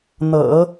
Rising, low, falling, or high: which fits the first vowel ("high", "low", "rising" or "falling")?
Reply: low